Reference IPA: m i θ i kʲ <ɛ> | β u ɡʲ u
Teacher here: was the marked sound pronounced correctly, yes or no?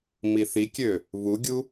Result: no